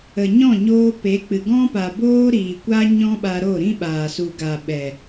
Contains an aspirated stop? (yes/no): no